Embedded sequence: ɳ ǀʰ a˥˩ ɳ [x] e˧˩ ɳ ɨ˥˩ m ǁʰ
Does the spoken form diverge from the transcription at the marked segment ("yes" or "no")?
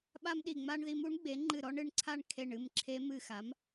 yes